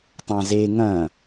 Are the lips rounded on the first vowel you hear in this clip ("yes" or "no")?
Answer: no